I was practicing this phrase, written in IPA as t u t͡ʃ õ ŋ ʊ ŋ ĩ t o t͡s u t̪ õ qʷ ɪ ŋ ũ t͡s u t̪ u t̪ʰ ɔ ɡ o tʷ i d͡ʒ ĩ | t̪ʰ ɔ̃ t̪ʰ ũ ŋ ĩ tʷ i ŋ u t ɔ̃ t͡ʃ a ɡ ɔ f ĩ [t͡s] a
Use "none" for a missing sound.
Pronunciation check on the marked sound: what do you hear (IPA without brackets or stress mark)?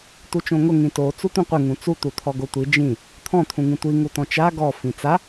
t͡s